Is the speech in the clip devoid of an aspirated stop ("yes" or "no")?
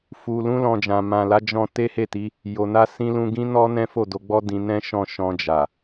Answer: yes